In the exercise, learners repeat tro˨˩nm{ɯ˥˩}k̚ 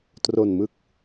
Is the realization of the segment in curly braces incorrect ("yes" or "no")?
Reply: yes